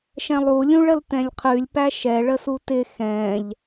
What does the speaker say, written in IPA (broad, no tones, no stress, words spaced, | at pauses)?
ʃɛ̃lˠu lʲũɭəltɛ̃lʲqʰʉlʲ pæʃɛ ɭəsutɪ xɛ̃ʎ